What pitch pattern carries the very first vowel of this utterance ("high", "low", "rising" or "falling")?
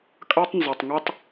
high